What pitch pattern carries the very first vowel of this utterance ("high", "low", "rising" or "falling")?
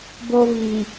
high